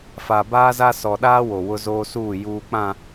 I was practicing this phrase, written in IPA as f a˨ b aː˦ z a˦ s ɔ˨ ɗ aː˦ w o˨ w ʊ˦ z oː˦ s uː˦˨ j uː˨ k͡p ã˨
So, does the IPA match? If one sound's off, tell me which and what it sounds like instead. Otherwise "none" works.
none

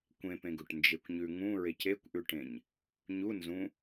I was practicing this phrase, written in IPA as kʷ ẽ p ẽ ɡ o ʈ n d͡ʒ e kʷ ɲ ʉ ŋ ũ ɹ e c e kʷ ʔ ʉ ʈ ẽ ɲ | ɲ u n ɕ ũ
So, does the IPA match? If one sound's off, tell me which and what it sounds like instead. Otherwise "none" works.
ɕ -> z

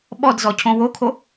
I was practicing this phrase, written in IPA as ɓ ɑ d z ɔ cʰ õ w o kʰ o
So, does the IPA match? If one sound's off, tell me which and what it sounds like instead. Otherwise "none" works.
ɑ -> ɔ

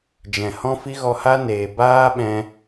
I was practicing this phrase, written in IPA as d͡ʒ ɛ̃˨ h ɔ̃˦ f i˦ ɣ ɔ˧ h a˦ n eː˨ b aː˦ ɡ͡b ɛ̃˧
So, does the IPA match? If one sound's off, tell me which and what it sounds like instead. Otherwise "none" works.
ɡ͡b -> ɓ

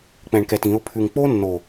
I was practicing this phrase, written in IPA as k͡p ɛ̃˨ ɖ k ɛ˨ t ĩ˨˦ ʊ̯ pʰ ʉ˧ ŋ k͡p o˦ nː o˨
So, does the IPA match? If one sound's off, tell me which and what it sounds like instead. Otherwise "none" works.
ɖ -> ɳ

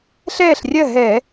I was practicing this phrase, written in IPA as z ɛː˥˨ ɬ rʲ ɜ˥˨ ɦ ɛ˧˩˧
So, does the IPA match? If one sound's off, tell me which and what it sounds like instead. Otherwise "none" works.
z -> ɬ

